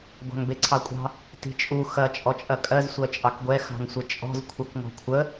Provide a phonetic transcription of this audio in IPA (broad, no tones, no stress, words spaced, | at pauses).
ɡʷɑ̤ŋbeǀʰɑkʷʼɑ̤ | ti̤t͡ʃʼu xɐ t͡ʃʼɔt͡ʃʼɐkʼɜz sʷɜt͡ʃʼɑkɡʷɛ xɑ̤ŋsʷət͡ʃʼɔ̤z kʷʰɐkŋɔ̤kʷʰə